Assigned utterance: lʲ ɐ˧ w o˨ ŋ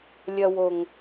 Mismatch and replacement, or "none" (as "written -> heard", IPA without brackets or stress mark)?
none